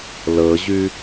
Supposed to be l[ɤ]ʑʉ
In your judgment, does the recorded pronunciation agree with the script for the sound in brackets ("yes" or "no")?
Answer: yes